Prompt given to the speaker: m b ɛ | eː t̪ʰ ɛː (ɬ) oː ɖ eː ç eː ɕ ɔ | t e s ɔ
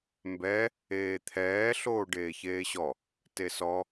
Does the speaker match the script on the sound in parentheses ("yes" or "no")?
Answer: yes